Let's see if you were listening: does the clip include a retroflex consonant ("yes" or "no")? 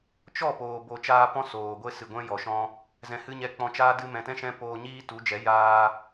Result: no